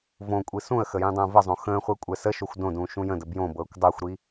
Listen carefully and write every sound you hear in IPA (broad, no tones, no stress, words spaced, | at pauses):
võkʷʼi sũə̯xə jĩdˤə̃ːvəzˤõ xə̃ːχʷe kʷʼɛsəʃoxʷ dõdũː ʃũjə̃də bjõ bɤːkʷdˤəːxʷɾi